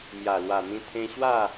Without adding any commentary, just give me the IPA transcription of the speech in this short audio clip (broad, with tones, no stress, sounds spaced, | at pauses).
m j a˨˩ l w a˨˩ n̪ ĩ˧ t̪ʰ ẽ˧ ɕ w a˥˧